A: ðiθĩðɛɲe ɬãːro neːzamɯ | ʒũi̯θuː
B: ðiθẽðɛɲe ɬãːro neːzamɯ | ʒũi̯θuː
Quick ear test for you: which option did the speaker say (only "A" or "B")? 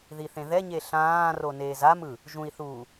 B